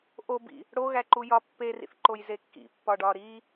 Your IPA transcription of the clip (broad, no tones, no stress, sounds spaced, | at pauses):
ʔ o b ḭ | ɽ o ɣ æ ǃ u j ɒ pː e r ḭ θ ǃ o j z e kː ḭ pː ɒ ɖ ɒ ɾ i